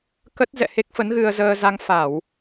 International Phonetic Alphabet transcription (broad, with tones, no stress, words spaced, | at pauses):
kə˦˥t̚ zɛ̰˧˨he˦˥k̚fə˨˦n ɣɨ˧ə̯zəː˧ za˧ŋfa˧˩˨w